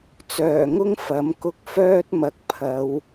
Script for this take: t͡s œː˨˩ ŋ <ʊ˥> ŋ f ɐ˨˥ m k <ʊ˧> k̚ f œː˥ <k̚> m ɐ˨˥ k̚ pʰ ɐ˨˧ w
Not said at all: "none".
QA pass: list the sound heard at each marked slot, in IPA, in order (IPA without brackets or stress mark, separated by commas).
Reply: ʊ˥, ʊ˧, t̚